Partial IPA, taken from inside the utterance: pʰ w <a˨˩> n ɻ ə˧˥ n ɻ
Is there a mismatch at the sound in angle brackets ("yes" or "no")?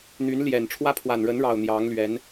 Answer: no